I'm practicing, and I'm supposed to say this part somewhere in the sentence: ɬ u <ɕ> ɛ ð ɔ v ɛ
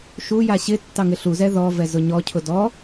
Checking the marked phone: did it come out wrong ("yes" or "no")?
yes